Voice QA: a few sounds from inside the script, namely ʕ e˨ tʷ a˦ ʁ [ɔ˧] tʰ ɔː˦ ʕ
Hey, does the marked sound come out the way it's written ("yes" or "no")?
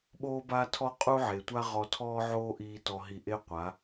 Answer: yes